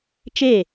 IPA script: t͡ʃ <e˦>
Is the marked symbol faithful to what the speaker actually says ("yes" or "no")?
no